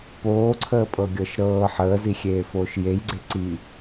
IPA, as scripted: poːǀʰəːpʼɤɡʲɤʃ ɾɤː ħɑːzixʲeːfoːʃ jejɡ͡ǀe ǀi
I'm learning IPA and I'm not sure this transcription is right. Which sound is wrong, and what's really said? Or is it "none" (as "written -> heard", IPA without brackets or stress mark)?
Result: ɑː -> əː